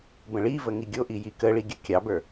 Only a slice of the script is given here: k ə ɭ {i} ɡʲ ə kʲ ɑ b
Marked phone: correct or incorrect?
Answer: correct